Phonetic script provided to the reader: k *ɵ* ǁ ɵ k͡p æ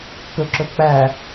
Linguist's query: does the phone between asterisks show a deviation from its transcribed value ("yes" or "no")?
no